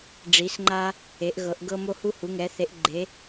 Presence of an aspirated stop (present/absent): absent